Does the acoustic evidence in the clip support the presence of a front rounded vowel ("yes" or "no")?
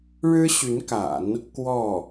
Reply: yes